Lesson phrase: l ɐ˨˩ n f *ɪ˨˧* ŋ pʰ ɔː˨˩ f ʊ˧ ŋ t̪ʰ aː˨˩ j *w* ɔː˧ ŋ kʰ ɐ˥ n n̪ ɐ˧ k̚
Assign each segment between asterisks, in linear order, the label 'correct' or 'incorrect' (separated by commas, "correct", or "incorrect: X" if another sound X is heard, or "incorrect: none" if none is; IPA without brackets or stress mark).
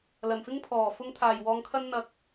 incorrect: ɪ˥, correct